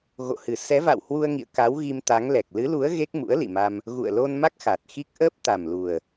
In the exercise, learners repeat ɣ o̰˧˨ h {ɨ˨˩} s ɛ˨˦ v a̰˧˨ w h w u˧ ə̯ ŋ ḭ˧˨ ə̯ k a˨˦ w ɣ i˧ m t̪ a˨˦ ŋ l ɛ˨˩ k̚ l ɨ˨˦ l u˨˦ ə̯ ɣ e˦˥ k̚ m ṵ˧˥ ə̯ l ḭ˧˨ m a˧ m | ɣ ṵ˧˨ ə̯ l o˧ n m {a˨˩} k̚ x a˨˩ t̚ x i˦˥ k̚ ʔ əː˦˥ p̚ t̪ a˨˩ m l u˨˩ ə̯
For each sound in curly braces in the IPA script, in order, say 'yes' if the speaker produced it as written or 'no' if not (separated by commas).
yes, no